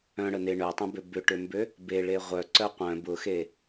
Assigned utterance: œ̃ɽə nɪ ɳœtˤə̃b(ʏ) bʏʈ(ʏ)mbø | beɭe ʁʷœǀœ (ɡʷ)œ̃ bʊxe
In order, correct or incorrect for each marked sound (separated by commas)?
correct, correct, incorrect